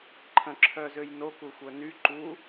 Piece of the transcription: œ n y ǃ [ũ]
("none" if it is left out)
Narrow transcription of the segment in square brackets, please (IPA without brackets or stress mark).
u